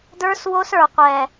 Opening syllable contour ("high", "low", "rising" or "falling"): high